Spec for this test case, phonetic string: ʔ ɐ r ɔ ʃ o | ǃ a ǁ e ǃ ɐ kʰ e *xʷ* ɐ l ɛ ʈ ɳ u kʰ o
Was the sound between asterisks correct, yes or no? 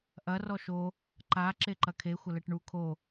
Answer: yes